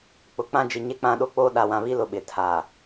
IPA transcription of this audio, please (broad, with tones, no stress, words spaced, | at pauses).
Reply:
k͡pʊ˨k͡pã˦ d͡ʒi˨ɲe˦k͡pã˦ ɗo˦k͡poː˦ ɗa˨wã˨βi˦lʊ˨ ɓɪ˨tʰaː˨